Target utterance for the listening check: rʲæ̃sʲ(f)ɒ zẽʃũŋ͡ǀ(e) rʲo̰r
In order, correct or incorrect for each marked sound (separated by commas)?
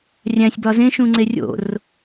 incorrect, correct